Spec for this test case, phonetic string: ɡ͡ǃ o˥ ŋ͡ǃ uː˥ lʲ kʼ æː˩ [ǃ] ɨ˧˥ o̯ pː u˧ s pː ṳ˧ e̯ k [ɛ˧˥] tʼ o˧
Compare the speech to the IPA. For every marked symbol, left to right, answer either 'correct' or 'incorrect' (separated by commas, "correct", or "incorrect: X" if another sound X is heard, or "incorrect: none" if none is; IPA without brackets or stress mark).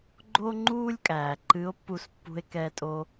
correct, incorrect: ɛ˧